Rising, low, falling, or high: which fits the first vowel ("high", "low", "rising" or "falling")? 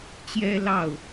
high